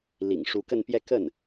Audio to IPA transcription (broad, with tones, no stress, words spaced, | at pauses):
lḭ˨˩ŋ ʂu˧˥kə˥˧npjɛ˥˧ kə˥˩n